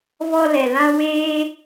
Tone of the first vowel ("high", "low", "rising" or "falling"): high